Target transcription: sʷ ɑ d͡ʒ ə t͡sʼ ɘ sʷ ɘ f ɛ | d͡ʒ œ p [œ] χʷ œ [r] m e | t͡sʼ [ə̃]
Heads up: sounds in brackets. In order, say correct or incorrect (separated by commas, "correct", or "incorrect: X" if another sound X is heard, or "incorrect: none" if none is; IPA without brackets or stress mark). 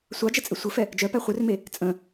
incorrect: æ, correct, correct